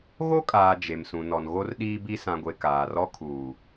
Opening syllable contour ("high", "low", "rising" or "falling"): high